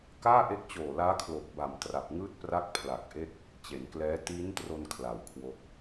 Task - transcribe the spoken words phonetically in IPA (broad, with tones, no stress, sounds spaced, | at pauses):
k aː˥˩ ʔ e˦˥ k̚ t͡ɕ oː˨˩ l aː˦˥ kʰ l o˨˩ k̚ b a˨˩ m t r a˨˩ p̚ ŋ ɯː˥˩ t̚ p r a˥˩ k̚ pʰ l a˨˩ k̚ ʔ e˥˩ k̚ | t͡ɕ e˩˦ n k l ɛː˦˥ t iː˦˥ n t r o˧ n kʰ l a˨˩ w kʰ w o˦˥ k̚